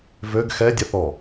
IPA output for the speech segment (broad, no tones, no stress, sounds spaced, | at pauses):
v ø ɡ x ɛ dʲ ɛ θ ɔ